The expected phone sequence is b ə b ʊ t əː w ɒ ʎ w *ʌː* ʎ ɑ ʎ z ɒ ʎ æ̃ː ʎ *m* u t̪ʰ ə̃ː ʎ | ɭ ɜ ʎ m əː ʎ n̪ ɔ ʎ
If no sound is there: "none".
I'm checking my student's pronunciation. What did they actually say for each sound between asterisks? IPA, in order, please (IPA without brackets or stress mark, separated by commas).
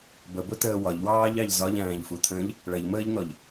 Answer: ɑː, f